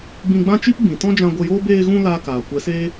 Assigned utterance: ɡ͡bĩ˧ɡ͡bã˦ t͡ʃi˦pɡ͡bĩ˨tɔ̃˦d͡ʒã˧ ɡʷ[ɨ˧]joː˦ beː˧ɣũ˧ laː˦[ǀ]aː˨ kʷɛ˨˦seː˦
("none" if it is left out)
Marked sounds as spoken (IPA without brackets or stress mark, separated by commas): ə˧, k